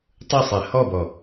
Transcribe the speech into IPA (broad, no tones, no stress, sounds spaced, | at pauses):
tˤ ɯ sˤ e h ɔ b ɔ